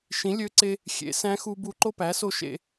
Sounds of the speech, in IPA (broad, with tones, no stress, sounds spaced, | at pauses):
ʃ ĩ˩˥ lʲ ø˧˥ ǀ e˧ | xʲ ḛ˩˥ s æ̃˧˥ x u˧ b u˧ ǃ o˥˧ p æ˩˥ s o˧ ʃ ḛ˨˩